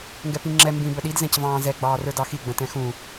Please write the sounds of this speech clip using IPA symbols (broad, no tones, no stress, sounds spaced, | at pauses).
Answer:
ŋ ɡ ɛ p ĩ ŋ͡ǁ ɛ m b ĩ b ə ɗ i d z ɛ̃ c v ɑ̃ː z ɛ ɡ͡b ɑː r ə˞ d ɑ x i ɡ͡b ə̃ t ɛ̃ x ũ